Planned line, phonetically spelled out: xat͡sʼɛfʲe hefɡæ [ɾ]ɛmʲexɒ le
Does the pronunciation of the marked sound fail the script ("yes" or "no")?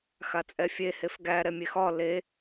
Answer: no